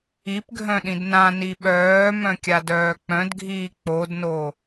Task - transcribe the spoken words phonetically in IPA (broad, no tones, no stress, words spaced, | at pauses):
ipɡʱœ̃ ɗĩdnãni ɓœːmœ̃ kʲadœːk͡pœ̃dɡʱiː k͡podno